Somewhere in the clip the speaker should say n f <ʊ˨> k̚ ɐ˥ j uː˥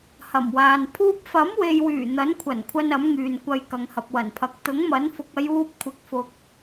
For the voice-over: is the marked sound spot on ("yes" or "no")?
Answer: no